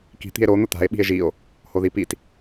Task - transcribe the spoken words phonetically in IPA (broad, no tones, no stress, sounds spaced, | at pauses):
k i̤ t̪ i̤ e̯ ɾ o n̪ ʊ t̪ a̤ e̯ ɓ i̤ e̯ ʒ i o̯ | h o ð i p i t